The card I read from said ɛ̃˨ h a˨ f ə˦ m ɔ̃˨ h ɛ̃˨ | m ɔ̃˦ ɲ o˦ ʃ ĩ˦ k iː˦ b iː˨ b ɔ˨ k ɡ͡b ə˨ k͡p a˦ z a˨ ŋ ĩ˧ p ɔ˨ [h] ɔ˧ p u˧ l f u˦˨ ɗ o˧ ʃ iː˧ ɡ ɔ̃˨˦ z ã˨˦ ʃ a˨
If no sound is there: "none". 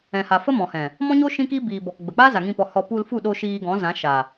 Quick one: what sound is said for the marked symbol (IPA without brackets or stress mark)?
h